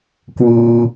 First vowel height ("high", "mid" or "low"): high